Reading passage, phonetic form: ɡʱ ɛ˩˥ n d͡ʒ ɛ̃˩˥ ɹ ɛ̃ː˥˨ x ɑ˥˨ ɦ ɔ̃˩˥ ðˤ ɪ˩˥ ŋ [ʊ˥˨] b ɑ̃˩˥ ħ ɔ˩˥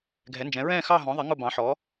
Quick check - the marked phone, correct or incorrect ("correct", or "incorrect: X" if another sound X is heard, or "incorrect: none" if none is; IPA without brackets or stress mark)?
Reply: correct